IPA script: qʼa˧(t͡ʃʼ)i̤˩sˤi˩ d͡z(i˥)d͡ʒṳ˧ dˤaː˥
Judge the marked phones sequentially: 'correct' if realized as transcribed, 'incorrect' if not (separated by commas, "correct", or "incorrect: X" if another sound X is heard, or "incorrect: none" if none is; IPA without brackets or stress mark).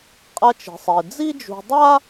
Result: incorrect: t͡ʃ, correct